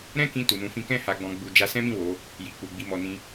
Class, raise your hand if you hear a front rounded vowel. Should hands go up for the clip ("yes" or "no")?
no